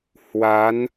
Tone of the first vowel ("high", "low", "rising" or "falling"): rising